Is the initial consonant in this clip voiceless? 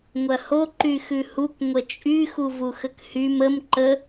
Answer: no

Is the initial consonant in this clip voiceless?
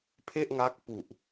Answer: yes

